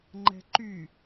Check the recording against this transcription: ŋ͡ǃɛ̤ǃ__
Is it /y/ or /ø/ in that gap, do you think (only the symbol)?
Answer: y